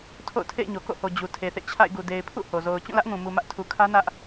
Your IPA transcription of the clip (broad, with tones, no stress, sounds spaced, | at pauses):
tʰ o̰˦˨ ʊ̯ tʰ ḛ˦˨ ɪ̯ ɲ o˨ k o̰˦˨ h o˨ d͡ʑ u˨ tʰ e˨ θ ḛ˦˨ t͡ɕʰ a̰˦˨ ɪ̯ ɡ u˨ d e˨ ɪ̯ pʰ ṵ˦˨ h o˨ z o˨ ʊ̯ t͡ɕ ũ˦˨ l ä˦ ʔ ŋ ũ˨ m u˨ m ä˦ ʔ tʰ u˨ kʰ ä˦ n ä˦ ʔ